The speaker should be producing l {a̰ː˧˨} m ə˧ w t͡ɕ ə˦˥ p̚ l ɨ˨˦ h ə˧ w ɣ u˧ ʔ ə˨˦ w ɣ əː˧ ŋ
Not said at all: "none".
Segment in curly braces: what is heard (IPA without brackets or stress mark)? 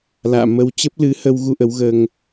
a̰ː˧˨